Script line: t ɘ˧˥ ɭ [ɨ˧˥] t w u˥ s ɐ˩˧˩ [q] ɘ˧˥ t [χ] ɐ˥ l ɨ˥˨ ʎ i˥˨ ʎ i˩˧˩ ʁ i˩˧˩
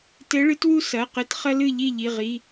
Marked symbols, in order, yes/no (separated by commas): yes, yes, yes